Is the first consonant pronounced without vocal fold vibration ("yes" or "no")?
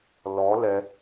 no